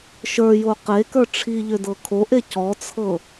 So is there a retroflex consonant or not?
yes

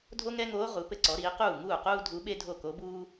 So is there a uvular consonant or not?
yes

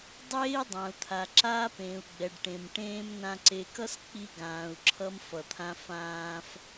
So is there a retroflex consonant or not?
yes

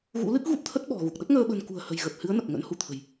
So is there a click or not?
no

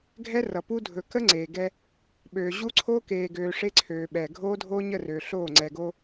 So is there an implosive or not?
yes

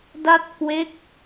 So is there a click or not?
no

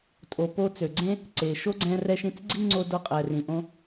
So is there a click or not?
yes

